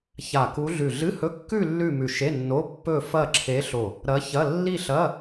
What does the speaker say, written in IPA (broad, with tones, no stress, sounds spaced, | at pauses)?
ç a˧˩ k u˧˥ ɮ ʉ˧˩ ɮ ɨ˧˥˧ h ɵ˧˥˧ kː ʉ˥˧ lː ʉ˥˧ m ʉ˧˩ ʃ e˧˥˧ nː o˧˥˧ pː ɵ˥˧ f ɐ˥˧ ǁʰ e˧˥ ɬ o˧˩ | ɾ ɐ˧˥ ç ɐ˧˥˧ lː i˥˧ ɬ ɐ˧˥˧